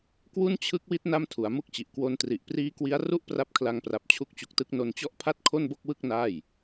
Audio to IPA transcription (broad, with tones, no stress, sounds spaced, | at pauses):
k w u˥˩ n t͡ɕʰ ɯ˦˥ k̚ w i˦˥ t̚ n a˥˩ m tʰ u˩˦ a̯ m u˥˩ k̚ t͡ɕ i˨˩ ʔ k w o˧ n t r i˨˩ ʔ p r iː˦˥ k w i˦˥ a̯ r u˥˩ ʔ p r a˦˥ p̚ kʰ l a˧ ŋ p r a˨˩ p̚ t͡ɕʰ u˦˥ k̚ t͡ɕ u˨˩ k̚ t ɯ˦˥ k̚ n o˧ n t͡ɕ ɔ˥˩ ʔ pʰ a˥˩ t̚ kʰ o˥˩ n b o˥˩ k̚ w ɯ˥˩ k̚ n aː˥˩ j